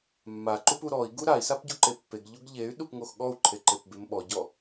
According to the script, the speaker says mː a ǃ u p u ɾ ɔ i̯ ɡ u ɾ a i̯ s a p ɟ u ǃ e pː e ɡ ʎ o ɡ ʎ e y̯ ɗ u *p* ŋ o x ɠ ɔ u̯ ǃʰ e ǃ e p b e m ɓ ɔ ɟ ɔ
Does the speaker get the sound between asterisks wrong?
no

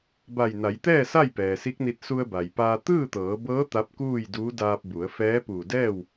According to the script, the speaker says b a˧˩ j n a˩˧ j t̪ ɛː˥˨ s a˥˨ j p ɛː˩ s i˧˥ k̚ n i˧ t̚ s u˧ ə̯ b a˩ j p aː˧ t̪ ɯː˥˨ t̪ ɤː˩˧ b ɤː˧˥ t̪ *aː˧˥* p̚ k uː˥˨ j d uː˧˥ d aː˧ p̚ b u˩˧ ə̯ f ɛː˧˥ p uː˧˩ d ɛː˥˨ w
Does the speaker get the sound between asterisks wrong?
yes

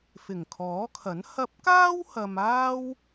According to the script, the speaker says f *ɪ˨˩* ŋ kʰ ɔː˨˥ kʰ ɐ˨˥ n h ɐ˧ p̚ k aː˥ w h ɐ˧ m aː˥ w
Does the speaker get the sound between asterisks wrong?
no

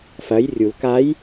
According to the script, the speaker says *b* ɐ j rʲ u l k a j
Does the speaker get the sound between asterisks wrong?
yes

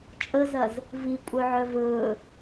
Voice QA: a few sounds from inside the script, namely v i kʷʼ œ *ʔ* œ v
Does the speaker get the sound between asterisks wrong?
yes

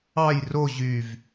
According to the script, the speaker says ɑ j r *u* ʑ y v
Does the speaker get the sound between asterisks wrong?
yes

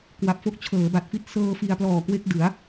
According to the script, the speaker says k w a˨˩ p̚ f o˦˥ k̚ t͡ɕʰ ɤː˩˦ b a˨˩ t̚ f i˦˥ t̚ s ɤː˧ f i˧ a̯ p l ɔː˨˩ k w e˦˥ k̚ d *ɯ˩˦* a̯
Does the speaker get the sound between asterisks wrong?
no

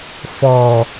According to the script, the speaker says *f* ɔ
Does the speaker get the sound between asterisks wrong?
no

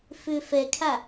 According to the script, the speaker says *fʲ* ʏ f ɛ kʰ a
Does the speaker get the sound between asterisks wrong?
yes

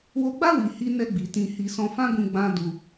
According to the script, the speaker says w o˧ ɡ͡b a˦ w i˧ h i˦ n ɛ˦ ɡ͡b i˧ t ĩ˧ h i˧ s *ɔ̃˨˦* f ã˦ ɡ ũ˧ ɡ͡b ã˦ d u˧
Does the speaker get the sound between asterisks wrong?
yes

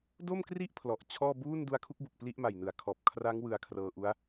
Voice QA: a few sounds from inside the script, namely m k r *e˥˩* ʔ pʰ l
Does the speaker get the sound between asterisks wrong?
yes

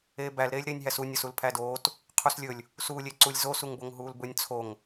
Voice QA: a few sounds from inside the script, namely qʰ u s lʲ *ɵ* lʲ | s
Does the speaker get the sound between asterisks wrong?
no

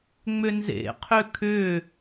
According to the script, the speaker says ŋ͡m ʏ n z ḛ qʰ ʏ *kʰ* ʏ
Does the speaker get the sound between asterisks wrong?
no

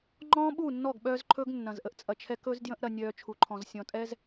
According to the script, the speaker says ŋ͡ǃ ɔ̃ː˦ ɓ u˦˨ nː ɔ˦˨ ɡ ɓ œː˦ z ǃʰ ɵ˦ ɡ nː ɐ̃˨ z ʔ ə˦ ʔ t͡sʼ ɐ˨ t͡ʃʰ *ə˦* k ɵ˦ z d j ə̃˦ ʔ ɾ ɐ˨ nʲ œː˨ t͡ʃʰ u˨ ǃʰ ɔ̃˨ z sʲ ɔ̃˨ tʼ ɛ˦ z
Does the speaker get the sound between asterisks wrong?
yes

